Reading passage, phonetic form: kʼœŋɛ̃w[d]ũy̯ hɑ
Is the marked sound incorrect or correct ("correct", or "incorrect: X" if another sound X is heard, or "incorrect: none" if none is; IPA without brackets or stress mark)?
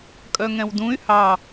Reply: correct